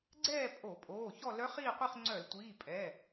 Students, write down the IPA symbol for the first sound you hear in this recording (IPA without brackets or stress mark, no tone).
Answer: ɡ͡ǀ